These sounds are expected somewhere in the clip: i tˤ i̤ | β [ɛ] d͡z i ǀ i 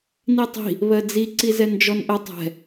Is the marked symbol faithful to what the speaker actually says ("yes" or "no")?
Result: no